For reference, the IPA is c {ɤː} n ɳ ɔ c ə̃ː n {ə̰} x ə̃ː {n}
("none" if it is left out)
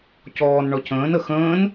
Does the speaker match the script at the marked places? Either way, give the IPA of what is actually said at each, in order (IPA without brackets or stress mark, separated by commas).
ɔː, ə, n